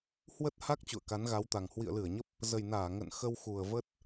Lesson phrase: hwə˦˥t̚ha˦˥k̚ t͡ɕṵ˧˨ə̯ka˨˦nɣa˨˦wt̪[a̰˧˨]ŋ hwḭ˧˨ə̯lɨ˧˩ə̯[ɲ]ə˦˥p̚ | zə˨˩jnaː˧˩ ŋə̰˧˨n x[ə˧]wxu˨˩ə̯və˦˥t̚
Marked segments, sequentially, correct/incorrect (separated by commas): incorrect, correct, correct